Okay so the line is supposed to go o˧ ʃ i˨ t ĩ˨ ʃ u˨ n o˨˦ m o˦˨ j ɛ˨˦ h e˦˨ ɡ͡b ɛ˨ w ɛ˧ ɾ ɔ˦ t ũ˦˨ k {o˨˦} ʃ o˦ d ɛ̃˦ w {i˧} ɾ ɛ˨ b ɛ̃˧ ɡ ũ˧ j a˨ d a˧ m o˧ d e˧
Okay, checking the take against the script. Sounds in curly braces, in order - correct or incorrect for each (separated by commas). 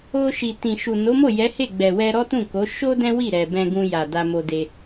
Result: correct, incorrect